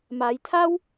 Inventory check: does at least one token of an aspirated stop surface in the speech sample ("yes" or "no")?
yes